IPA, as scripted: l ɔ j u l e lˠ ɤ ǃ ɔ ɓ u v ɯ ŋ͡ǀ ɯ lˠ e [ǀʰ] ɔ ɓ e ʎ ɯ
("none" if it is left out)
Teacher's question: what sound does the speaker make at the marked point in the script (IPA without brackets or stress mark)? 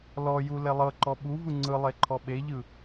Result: ǃʰ